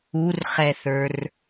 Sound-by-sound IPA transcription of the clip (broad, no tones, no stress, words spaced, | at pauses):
urχɛθə˞r